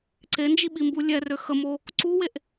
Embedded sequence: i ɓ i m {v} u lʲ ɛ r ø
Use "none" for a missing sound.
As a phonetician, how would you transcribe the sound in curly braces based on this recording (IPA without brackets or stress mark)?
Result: b